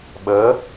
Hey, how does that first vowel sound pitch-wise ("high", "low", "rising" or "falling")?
rising